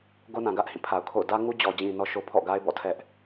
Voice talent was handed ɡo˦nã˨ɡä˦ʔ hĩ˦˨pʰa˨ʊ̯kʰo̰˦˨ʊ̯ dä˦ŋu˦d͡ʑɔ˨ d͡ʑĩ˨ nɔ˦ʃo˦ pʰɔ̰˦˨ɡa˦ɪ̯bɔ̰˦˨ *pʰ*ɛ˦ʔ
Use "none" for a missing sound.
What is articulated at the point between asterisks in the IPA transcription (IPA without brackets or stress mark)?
tʰ